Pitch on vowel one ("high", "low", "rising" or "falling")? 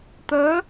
rising